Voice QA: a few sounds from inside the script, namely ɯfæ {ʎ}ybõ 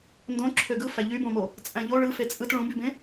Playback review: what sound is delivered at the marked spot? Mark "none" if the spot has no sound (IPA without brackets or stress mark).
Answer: ʎ